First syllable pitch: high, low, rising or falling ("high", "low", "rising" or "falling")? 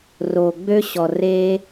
low